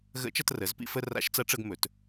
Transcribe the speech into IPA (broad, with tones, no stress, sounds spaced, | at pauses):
ɣ ə̰˧˥ t͡ʃ ʌ˧ t r ə˩˧ z p ḭ˧ f ə˧ r a̰˧˥ ʃ t͡s ɐ˧˥ ʈ͡ʂ ə˧ ɡ m ɵ˩˧ t